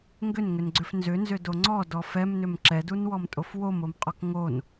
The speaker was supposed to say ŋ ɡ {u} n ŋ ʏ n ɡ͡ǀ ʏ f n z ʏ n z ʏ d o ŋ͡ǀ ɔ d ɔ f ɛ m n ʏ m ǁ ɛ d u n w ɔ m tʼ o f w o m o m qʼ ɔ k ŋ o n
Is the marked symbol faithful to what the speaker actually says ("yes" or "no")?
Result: no